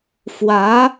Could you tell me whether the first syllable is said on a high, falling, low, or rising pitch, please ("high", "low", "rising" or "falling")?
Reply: rising